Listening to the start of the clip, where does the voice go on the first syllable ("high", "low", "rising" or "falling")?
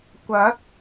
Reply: rising